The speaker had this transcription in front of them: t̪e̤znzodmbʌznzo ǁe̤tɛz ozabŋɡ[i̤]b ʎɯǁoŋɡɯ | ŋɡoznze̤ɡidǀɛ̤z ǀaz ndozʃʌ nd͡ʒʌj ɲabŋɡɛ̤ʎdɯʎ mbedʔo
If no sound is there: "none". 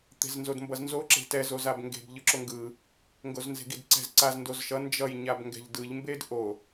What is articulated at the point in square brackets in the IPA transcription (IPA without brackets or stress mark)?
e̤